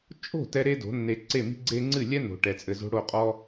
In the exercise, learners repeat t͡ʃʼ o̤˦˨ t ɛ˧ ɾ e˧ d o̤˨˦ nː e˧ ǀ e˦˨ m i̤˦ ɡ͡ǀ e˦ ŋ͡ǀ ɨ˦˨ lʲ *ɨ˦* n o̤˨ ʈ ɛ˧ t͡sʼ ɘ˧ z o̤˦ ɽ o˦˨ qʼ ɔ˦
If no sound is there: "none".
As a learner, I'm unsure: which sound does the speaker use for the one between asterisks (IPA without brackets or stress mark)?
ɛ˦